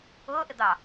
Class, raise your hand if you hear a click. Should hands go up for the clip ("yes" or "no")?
no